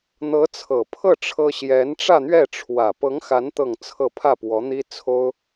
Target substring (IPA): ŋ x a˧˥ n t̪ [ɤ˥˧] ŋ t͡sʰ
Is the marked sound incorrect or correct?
correct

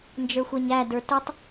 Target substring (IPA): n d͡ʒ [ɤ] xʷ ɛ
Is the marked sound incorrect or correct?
incorrect: ə˞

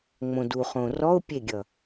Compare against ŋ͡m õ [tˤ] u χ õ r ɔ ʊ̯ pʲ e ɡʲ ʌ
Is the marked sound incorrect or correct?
incorrect: d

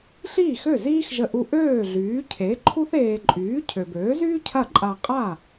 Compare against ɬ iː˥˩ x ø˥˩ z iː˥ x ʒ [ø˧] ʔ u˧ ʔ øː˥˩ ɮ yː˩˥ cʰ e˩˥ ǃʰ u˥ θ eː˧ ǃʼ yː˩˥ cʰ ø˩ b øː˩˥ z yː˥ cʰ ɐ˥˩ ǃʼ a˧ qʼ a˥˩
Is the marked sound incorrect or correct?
incorrect: ə˧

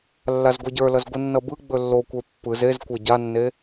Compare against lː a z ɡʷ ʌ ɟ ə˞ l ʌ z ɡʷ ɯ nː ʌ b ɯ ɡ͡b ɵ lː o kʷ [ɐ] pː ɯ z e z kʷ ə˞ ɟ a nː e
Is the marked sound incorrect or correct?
incorrect: ə˞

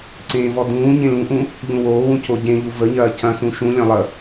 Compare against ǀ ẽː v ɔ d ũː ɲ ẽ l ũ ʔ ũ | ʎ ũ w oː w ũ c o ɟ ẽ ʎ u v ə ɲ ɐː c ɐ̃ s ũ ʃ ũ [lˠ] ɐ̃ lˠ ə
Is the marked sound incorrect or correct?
incorrect: lʲ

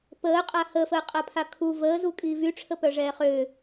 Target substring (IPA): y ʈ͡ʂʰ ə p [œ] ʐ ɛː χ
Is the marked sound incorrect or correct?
correct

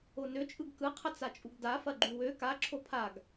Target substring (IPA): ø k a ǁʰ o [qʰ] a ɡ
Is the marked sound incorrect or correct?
incorrect: pʰ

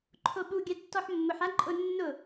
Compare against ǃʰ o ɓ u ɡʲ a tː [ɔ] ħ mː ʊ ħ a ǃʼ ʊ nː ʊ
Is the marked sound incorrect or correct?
correct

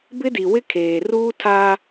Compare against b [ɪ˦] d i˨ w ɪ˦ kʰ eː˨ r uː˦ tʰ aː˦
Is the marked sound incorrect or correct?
correct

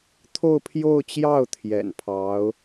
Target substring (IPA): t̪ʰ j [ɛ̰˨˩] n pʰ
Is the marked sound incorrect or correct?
correct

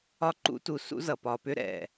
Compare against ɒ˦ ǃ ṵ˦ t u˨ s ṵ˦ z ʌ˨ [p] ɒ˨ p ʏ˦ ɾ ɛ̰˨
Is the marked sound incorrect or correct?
correct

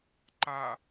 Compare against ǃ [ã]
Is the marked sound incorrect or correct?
incorrect: a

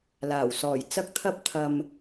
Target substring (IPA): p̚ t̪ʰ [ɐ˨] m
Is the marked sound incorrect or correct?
incorrect: ɐ˧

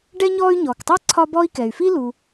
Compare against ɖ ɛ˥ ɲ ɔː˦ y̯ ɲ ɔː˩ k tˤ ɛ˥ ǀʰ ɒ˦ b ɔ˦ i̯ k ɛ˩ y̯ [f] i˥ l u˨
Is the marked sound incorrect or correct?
correct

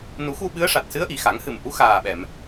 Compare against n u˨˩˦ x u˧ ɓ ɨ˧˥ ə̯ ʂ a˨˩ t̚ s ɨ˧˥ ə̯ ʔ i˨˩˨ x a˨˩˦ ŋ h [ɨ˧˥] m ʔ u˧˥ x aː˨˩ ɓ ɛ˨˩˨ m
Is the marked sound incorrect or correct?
incorrect: ɨ˨˩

